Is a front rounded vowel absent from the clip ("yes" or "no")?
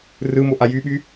no